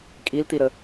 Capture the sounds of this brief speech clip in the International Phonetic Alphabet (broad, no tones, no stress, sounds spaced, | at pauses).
kʼ i l t̪ i ɾ ə